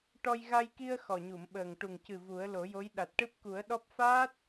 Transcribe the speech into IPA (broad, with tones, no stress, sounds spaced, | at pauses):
ʈ ɔ˧ j ɣ a˧ j k i˧ ə̯ x ɔ˨˩ ɲ u˨˩˨ m ɓ əː˨˩ ŋ ʈ u˨˩ ŋ c ɨ˨˩ v u˨˩˦ ə̯ l o˨˩˦ j o˧˥ j ɗ a˨˩ t̚ ʈ ɨ˦˥ p̚ k u˨˩˦ ə̯ ɗ ɔ˦˥ p̚ f aː˦˥ t̚